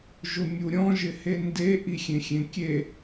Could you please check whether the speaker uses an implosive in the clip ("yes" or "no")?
no